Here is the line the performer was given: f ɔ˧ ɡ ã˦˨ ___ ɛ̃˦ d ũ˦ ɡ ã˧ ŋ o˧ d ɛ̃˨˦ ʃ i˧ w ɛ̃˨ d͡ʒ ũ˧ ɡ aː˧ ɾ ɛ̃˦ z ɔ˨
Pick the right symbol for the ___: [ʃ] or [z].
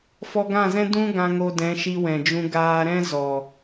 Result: z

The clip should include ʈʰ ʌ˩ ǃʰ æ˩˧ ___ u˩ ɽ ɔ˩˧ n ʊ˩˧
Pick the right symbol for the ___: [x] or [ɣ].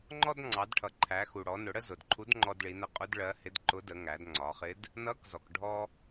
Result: x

